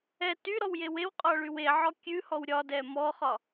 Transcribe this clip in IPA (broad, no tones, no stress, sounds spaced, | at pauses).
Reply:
ɛ t y ɾ ɔ w j e w e w qʼ ɒ ɭ y w e ʕ ɔ kʲ ʉ h ɔ w ɾʲ ɒ d ɛ m ɔ χ ɒ